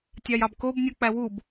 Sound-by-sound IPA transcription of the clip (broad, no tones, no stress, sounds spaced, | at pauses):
tʲ ɑ j ɑ b k o b nʲ u k͡p æ w u b